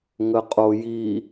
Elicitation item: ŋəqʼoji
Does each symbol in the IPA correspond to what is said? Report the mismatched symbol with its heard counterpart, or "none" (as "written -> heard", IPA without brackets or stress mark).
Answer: none